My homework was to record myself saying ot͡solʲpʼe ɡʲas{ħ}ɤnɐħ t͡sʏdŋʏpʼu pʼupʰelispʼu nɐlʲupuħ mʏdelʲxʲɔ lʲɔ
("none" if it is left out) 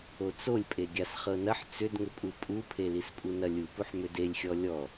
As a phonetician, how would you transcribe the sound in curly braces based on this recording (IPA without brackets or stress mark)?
χ